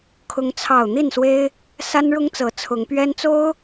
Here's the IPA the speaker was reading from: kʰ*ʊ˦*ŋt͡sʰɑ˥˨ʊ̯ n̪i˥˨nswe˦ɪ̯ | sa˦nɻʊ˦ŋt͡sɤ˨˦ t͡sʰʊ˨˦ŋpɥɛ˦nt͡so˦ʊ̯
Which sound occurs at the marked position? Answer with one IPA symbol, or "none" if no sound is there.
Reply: ʊ˦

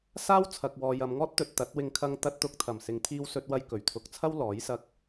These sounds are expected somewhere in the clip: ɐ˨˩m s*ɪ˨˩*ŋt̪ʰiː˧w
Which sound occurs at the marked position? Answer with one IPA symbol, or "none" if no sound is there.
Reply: ɪ˨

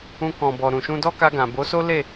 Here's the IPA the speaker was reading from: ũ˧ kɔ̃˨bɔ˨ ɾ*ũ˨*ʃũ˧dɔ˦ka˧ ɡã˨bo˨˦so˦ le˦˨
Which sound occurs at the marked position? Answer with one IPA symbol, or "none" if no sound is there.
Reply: ũ˨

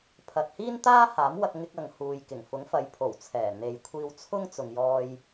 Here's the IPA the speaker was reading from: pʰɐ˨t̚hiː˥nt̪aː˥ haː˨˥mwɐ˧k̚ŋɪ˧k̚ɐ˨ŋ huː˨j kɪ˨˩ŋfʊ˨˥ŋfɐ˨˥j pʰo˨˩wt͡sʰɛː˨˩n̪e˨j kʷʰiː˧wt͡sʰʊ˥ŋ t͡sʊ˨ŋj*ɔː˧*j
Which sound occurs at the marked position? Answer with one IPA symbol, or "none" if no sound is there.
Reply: ɔː˧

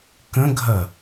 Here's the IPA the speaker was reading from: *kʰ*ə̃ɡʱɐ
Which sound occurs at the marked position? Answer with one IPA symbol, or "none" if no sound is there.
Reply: k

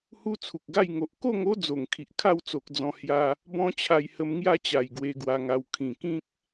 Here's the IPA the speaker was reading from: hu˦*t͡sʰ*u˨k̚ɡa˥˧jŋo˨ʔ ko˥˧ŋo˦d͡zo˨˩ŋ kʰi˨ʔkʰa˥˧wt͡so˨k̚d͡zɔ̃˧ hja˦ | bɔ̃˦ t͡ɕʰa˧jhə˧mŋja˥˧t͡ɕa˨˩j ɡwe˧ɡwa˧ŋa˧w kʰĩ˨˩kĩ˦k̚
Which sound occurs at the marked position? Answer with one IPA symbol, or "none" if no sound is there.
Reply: t͡sʰ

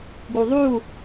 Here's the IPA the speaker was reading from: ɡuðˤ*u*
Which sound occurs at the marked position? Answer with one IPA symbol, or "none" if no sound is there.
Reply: u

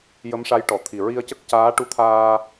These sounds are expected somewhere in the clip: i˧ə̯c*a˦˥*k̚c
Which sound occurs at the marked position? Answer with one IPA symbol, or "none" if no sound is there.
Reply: ə˦˥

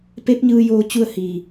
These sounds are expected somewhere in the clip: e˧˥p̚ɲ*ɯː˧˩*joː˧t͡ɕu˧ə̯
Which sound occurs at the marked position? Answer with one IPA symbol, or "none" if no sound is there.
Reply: ɯː˧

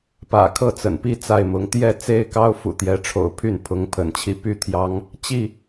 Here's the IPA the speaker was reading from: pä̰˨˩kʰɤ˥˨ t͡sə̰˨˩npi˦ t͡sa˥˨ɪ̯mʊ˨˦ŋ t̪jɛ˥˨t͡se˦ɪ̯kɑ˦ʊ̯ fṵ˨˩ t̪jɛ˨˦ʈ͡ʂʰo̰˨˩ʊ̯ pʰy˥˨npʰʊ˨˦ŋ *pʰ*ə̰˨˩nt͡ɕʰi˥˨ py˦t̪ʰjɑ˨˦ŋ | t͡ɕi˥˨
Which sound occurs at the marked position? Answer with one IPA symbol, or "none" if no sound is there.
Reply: pʰ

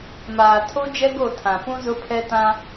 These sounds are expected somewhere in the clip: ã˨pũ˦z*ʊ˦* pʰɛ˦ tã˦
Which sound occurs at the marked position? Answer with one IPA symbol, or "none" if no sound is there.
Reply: ʊ˦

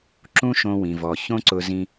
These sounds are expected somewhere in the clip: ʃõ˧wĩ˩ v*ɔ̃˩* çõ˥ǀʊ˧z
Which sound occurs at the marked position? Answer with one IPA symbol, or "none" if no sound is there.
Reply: ɔ˩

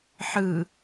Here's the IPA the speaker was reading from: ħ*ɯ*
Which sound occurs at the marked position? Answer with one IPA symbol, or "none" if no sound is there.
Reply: ɯ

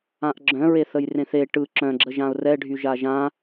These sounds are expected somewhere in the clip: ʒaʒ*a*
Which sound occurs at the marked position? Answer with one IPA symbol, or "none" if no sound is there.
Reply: ã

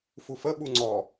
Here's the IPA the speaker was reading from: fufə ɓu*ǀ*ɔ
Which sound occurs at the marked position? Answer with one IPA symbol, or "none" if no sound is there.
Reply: ŋ͡ǀ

